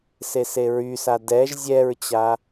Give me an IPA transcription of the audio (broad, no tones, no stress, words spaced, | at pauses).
seseɹysa dɛʒ zʲɛɹt͡ɕa